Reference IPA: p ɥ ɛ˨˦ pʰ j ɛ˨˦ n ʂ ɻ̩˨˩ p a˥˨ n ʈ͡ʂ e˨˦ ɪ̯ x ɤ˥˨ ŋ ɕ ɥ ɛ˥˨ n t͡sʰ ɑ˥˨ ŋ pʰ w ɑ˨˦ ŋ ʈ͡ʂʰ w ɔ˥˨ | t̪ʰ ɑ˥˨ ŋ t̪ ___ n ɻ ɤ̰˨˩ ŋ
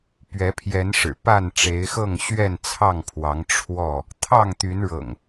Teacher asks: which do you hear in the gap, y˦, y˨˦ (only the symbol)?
y˨˦